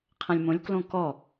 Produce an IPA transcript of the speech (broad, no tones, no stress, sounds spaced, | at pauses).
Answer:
qʰ ɐ̃ lʲ m õ lʲ k l õ k ɔ